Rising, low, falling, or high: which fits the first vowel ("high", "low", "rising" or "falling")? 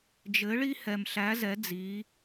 rising